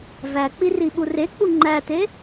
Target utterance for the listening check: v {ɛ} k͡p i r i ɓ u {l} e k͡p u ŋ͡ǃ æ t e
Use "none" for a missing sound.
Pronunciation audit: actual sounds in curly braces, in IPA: æ, r

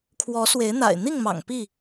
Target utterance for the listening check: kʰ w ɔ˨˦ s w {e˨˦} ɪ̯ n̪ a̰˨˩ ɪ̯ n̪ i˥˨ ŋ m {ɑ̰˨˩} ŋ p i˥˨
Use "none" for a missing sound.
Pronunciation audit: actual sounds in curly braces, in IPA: e˨˦, ɑ̰˨˩

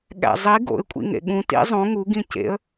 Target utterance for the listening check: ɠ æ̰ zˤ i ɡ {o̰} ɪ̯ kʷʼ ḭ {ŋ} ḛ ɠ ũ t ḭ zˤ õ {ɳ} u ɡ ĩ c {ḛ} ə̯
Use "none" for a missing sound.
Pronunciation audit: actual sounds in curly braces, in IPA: o̰, ŋ, ŋ, ḛ

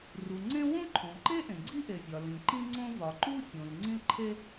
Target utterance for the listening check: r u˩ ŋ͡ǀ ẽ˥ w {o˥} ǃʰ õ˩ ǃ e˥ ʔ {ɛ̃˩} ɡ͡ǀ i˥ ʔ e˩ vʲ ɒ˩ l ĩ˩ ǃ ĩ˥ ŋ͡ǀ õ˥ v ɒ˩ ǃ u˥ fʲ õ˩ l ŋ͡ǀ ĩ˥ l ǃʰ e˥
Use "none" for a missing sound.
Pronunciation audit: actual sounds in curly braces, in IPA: õ˥, ẽ˩

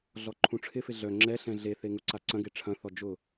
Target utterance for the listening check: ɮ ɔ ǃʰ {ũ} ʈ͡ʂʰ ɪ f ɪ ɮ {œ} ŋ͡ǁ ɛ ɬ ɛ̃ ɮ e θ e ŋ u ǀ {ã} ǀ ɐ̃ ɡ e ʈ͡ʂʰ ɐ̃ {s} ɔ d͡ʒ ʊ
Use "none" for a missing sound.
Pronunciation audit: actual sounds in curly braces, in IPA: ũ, œ, a, θ

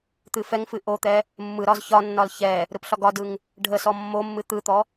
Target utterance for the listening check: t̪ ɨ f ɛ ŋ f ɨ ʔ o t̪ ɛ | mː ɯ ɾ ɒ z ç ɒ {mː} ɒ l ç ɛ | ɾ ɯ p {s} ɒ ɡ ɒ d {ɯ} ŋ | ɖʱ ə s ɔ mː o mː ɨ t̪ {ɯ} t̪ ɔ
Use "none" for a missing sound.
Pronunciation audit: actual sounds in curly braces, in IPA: nː, ɬ, ɯ, ɯ

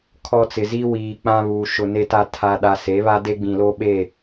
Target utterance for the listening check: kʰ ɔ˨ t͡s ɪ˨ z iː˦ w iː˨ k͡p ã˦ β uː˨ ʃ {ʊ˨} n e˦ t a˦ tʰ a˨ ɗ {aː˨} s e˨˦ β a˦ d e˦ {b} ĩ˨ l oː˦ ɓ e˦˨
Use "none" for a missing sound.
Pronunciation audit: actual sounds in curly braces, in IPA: ʊ˨, a˨, ɡ͡b

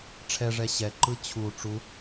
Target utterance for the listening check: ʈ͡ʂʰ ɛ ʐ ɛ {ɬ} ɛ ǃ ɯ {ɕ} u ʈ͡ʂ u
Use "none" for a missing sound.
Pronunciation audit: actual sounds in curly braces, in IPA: ɕ, t͡ɕʰ

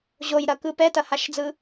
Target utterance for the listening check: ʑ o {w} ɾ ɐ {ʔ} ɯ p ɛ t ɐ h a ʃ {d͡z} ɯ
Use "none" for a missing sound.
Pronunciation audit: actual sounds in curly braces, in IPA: j, k, d͡z

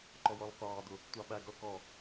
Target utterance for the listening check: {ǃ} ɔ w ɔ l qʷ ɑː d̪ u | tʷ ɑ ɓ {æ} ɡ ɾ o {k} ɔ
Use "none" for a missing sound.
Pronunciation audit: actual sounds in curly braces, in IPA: ǃ, æ, k

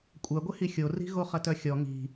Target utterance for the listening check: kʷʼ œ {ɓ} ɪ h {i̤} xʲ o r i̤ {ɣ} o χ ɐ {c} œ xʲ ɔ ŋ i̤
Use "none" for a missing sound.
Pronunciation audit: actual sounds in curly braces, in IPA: ɡʷ, i, ɣ, t

